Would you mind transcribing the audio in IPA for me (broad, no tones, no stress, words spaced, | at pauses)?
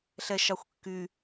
ɬɛʃɑxʷkːy